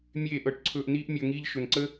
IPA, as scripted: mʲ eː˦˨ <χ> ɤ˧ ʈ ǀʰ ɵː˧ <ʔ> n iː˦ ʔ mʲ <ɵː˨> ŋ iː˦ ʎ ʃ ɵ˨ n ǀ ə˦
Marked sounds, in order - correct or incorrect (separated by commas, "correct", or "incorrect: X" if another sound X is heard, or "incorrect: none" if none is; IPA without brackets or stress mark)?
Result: incorrect: ʔ, correct, incorrect: ɵː˧